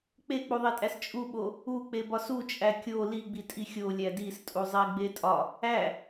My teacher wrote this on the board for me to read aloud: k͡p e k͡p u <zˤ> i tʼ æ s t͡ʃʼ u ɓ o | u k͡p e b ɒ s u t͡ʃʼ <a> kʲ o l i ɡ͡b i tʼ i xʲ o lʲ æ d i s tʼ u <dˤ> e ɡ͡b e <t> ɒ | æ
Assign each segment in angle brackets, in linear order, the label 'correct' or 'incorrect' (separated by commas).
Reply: incorrect, incorrect, incorrect, incorrect